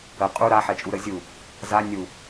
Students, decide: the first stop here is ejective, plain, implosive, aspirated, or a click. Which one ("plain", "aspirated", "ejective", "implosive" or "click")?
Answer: ejective